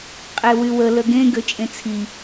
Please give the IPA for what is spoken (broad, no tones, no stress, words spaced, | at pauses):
qʼewywə ləɡẽ ɡøt͡ʃʼẽt͡sʰi